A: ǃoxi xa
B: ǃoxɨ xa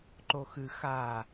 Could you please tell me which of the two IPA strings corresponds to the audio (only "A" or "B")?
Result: B